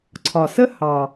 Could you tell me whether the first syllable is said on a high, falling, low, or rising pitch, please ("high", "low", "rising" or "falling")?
low